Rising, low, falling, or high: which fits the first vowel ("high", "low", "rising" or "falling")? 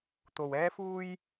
low